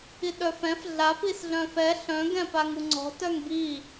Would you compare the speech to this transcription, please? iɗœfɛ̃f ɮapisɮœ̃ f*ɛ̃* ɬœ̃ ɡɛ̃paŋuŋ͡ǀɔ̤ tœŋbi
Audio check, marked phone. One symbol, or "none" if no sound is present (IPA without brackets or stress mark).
ɛ